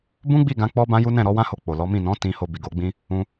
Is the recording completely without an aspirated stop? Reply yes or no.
yes